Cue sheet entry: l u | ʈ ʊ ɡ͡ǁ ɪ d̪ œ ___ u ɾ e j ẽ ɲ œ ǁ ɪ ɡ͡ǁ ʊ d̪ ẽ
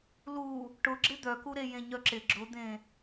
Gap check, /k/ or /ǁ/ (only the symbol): k